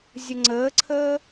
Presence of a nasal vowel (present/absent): absent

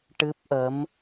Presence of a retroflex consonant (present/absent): present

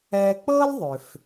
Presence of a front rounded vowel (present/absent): present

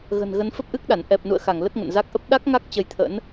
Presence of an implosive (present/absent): present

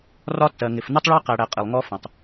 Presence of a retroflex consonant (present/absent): present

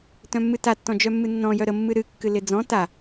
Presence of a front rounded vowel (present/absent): present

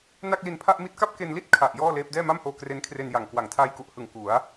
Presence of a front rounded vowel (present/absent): absent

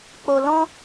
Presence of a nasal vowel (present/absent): present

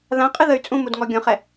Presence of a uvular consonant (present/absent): present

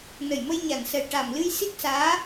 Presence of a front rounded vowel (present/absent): absent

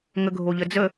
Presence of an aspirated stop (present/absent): absent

